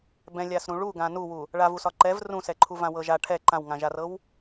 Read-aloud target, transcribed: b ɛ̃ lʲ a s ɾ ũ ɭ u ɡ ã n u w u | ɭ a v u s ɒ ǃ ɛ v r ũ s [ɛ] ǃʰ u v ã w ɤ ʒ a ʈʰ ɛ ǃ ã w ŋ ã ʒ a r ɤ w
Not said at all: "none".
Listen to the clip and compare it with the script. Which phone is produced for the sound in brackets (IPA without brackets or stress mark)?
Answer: ɛ